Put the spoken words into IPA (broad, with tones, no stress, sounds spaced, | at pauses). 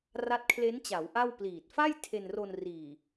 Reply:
r a˦˥ t̚ kʰ l e˦˥ n t͡ɕ a˩˦ w ʔ a˥˩ w p l iː˨˩ t̚ f a˥˩ j tʰ e˧ n r o˧ n r iː˨˩